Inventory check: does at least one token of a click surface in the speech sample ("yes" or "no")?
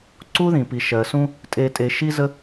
yes